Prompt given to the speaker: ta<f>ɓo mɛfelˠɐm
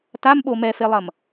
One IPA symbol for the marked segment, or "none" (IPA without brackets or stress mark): m